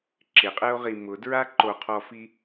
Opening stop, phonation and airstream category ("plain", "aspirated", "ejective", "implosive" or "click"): click